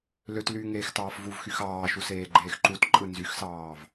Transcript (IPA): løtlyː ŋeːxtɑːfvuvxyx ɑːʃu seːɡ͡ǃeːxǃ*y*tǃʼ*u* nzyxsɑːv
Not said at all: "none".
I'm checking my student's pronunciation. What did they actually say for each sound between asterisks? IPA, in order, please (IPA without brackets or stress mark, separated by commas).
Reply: u, ɯ